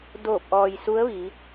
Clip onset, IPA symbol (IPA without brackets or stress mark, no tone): d